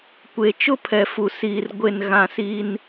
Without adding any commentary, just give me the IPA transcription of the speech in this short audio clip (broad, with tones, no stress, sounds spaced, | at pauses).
kʷ e˨ t͡ʃ ʊ˦ pʰ ɛ˨ f u˨ s iː˨ r ɡʷ e˨ n ɣ ã˨ s iː˦ n